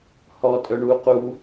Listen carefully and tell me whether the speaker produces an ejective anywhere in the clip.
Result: yes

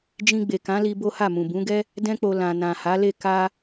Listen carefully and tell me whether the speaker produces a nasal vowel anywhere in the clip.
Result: yes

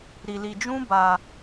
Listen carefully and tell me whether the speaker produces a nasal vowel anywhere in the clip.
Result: yes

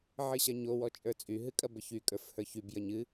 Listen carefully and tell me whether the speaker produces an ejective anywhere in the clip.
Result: yes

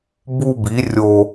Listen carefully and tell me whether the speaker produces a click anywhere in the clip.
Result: no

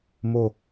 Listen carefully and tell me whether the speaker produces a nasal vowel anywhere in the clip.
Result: no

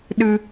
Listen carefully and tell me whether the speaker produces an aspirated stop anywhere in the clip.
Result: no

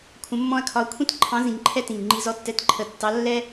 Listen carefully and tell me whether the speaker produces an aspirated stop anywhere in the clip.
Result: yes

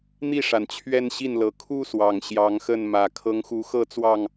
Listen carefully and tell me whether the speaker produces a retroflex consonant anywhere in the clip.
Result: yes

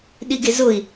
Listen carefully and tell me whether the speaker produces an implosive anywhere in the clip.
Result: yes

